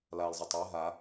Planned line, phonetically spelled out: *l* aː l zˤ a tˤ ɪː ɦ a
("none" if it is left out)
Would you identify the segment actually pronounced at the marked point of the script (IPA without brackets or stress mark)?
l